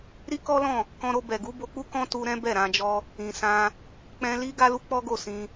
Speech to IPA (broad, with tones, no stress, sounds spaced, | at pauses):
ɾ i˦ k ɔ˦ l ɔ̃˦˨ | k ɔ̃˧ ɾ o˧ b ɛ˨ ɡ u˨˦ b o˧ k͡p u˦ k ɔ̃˦ t u˧ ɾ ɛ̃˦ b ɛ˦˨ ɾ ã˧ d͡ʒ ɔ˧ | ĩ˨ s ã˧ | k͡p ɛ̃˧ l i˦ ɡ a˦ l u˦ k͡p ɔ˦ ɡ o˦˨ s ĩ˧